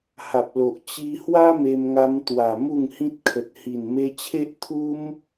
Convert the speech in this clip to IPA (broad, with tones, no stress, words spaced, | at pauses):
ha˨p̚lo˨ʔ t͡ɕi˧hwa˦ me˧mŋa˧mt̪wa˨˩ mu˥˧ŋhĩ˦t̚kʰə˨t̚ hi˨˩nme˧ t͡ɕʰe˦ʔt̪ʰu˦m